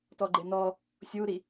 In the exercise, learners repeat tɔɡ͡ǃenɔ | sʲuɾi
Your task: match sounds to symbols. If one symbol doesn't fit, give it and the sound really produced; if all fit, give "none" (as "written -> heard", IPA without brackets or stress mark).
none